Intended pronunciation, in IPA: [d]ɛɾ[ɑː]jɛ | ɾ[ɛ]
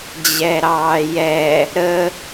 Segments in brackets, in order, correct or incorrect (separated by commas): incorrect, correct, incorrect